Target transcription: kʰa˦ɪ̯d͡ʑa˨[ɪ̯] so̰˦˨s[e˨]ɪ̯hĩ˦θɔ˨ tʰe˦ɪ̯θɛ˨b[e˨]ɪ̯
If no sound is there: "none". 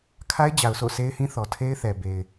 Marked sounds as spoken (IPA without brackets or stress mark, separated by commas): ʊ̯, e˦, e˨